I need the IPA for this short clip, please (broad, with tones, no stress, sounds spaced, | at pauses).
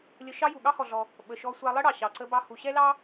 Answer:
lʲ ə˧ ʃ ɑ˥ j u˩ ɠ ɑ˥ h ɔ˩ ɮ ɔ˩ | ɓ ə˩ ʃ ɔ˧ sʷ ɑ˧ lˠ ə˥ ɽ ɑ˩ ɕ ɑ˩ ǀ ə˧ b ɑ˧ h u˩ ɕ ɛ˥ l ɑ˥